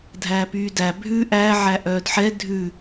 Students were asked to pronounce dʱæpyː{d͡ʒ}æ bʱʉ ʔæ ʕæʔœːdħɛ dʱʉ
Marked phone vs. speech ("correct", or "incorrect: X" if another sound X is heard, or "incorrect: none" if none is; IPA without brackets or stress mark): incorrect: d